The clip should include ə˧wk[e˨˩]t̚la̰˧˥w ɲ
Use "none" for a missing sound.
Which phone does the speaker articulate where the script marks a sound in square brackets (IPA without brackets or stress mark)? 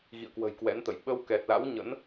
ɛ˨˩